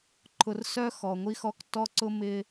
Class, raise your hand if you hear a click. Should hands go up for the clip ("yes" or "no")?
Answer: yes